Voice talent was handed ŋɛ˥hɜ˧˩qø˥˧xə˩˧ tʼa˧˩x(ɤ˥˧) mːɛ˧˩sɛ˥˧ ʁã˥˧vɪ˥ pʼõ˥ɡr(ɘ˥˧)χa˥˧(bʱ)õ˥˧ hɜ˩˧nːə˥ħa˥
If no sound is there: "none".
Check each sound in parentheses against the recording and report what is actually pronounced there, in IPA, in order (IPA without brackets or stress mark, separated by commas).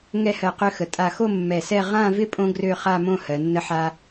o˥˧, ø˥˧, m